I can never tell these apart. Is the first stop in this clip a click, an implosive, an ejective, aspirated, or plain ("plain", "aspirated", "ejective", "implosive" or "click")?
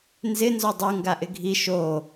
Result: plain